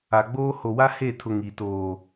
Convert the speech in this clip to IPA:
a˨ ɡ͡b oː˦ h o˨ w a˦ h e˦˨ tʰ ʊ˨ ŋ i˨ t oː˨

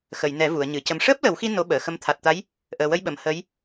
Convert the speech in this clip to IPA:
x ə˨˩˨ j n ɛ˨˩˦ v u˨˩˨ ə̯ ɲ ɨ˨˩˨ c ə˨˩ m ʂ əː˦˥ p̚ l ə˨˩˦ w x i˧ n o˧˥ ɓ əː˨˩˨ x ə˧˥ m t̪ʰ a˨˩ t̚ t̪ a˧˥ j | ʔ əː˨˩ w ə˧ j ɓ ə˨˩˨ m h ə˧˥ j

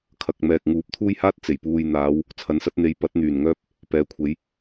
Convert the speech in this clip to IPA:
kʰ ɐ˨ k̚ m ɛː˨ k̚ ŋ uː˨˥ p̚ t̪ʰ uː˥ j h aː˥ t̚ t͡s e˨˩ j p uː˧ j n̪ aː˨˧ w | t͡sʰ ɐ˨˥ n s ɐ˨˥ t̚ n̪ e˨˧ j p ɐ˨˥ t̚ n̪ yː˨˩ n ŋ œː˥ p̚ | p ɛː˨ kʷʰ e˨˧ j

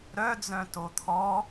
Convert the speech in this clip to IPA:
ɾ œ d͡z œ̃ t o t̪ʰ ɔ

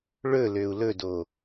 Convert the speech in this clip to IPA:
ɭ ɵ l ø u̯ l ɵ d o

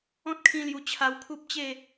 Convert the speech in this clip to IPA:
ɔ̃˦ t̚ kʰ ĩ˧ l j u˨˩ t͡ɕʰ a˧ w kʰ u˦ p̚ t͡ɕ e˥˧

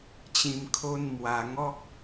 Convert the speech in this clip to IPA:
t͡ɕ ĩ˨˩ m kʰ o˧ n m w a˨˩ ŋ ɔ˦ k̚

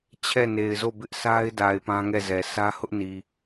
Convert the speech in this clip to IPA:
t͡ɕʰ ɛ˦˨ n e˨ ɪ̯ z o˦˨ b ɪ˦ ʔ s a˦ ɪ̯ d a˨ ɪ̯ p ã˦ ŋ ɛ˦˨ z ɛ˨ sʰ ä˦ h ʊ˦ ʔ n i˨

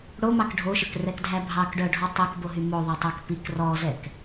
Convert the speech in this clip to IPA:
ɽ o m ɑ k ɖʱ o ʃ ɵ k r ɛ k dʱ æ bʱ ɑ k ɖ œ ɖʱ ɔ tˤ i k b o ɦ y m o ðˤ œ tˤ œ k p i k r ɔ z ɛ k

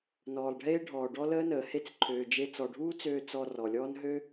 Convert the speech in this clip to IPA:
n ɔː˨ lˠ ɖʱ eː˦ ɖʱ ɔː˨ ɖ ɔ˦ l əː˦ n əː˨ h e˦ t͡s ǃʰ øː˧ d͡ʒ e˦ t͡s ɔ˨ ɖʱ uː˦ t͡s øː˧ t͡s ɔ˧ r ɔ˨ lʲ ɔː˦ n ɦ ø˦

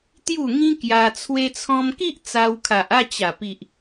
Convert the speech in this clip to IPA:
t̪ j u˥˧ ŋ ĩ˦ k j a˧ t͡sʰ w e˧ t͡sʰ ɔ̃˧ m k i˦ ʔ t͡s a˧ w kʰ a˨ ʔ a˥˧ t͡ɕ a˨˩ p i˨ ʔ

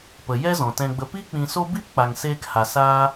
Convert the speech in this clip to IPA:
p ə˨ j ɛ˦ z ɔ̃˨ t ɛ̃˧ ɡ͡b ə˧ p i˦ k͡p ĩ˧ s o˦ b i˦ p k͡p a˧ ŋ s eː˦ k h a˧ s aː˦

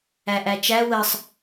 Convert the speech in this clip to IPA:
æ ʔ æ t͡ʃ æ w ə sˤ

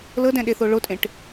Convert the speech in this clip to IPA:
l ɤ d ɛ̃ ɗ e θ o ɭ o tʼ ẽ ʈ

